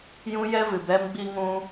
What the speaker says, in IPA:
jũ˧jɛ˧vɨ˨bɛ˧m ɡ͡bi˦ŋũ˦

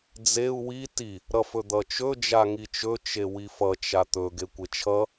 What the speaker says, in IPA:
d͡zeu̯ wi ti | ɾʌfɵd̪ʌt͡ʃɵ d͡ʒaŋit͡ʃɵ t͡ʃewifʌ t͡ʃat̪ɵ ɡekʷet͡ʃʰʌ

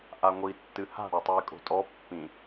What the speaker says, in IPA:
ʔaŋʷi tːɨha̤ ɽatˤujkʼo̤tʼɔ pːĩ

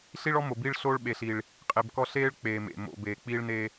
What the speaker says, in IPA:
ɬi˦ɭɔ˦mo˨biː˦ɭ ɬoː˦ɭɓe˨ɬiː˨ɭ | qʼe˨bkɔ˦ ɬeː˦ɭ k͡peː˨mḛ˨ mo̰˨beː˨k͡piː˦ɭneː˦

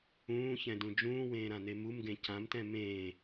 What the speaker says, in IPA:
ũːçɛ̃dũ d͡ʒũːwẽːɾãne mumɡẽ cãmtɛ̃ mẽː

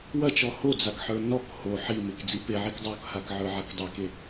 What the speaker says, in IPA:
wɐt͡ʃɔ hod͡zakħə˞ nɔk ho ħimek d͡zipeʕik dˤokhakʕə˞ ʕakdˤake

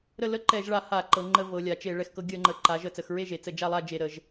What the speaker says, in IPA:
ɾə˥˨ lə˥˨ǃɛ˧˩˧ʒɭa˧˩˧ ha˧˩˧ ǃɤ˩˧ŋ͡ǃə˧˩˧ vɤ˩˧lʲa˩˧t͡ʃe˧˩˧ ɭɛ˩˧xkɤ˩˧ ɡʲə˧˩˧ŋ͡ǃə˩˧ ǃa˩˧ʒə˧˩˧ t͡sə˩˧xɹe˥˨ʒe˩˧ t͡sə˧˩˧d͡ʒa˥˨lˠa˥˨ d͡ʒe˧˩˧ɾə˧˩˧ʒ

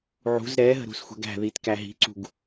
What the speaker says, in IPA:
ʕṳz ɾɛɦə̤ ɾṳsxʷɛ̤ɡæ̤ðit kæɦi̤ǀṳɡ

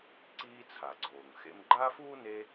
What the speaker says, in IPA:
ǀiː˦t͡sʰa˩ɡ͡ǀoː˩ŋ xḛ˦m ɡ͡ǃaː˥fuː˥ne˦

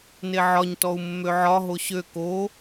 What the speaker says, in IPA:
neʕɒɲ tɔu̯mːøʕɒ ɦoɕø ko

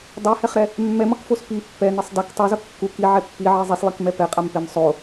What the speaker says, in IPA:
dˤehɛχɾɛ | mːɛmʌkfos pi pːɛnesˤ dak tˤozʌ kːuk iʕɛ pːiʕi zˤislˠikmɛ pɛqʼampem sˤo

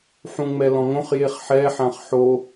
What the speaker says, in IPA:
ħũŋ͡mɛlɔ̃ŋõχ jeχħɛ ħãχħo

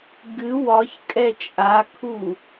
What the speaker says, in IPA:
ɡɨ wɒçkʼɛ t͡ʃʼakʰu

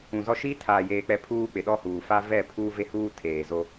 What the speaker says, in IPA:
ũ˨zɔ˦ ʃi˦tʰaː˨jeː˨k͡pɛ˨˦ pʰuː˦k͡pɪ˨ɗɔ˦huː˨ fa˦vɛ˦˨pʰuː˦ ve˦huː˦ tʰeː˨zo˦

